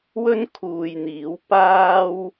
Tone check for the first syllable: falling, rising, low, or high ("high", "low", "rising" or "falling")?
high